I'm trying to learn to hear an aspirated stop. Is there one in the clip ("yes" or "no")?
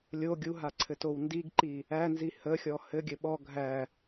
yes